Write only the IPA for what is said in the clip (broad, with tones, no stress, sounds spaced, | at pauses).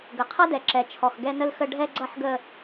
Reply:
ɡ ə˨ qʰ ʌ˦ d ɛ˨ ǁ ɛ˨ t͡ʃʰ ɔ˨ x ɡ ɛ˦ n ə˦ l x ə˦ ɖʱ ɛ˦ ɡ͡ǀ ʌ˦ ħ ɡ ə˦